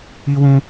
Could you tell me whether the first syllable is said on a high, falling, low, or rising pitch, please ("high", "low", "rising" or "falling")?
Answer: high